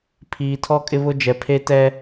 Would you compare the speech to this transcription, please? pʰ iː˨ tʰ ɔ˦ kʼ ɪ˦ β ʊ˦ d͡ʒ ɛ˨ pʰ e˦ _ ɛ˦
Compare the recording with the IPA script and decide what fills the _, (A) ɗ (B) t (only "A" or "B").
B